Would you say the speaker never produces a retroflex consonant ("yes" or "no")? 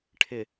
no